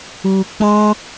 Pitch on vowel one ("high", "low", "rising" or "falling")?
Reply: low